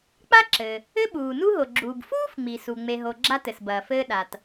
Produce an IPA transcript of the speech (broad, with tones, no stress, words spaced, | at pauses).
k͡pa˥ǁɘ˩ | ɘ˥ɓuː˩ nu˥ɦo˩ɡ͡ǁuː˩b fuː˥fŋ͡mi˩su˩ ŋ͡me˩ɦo˩ ɡ͡ǁa˥tɘ˩sbɐː˩fɘː˥ ɗa˩t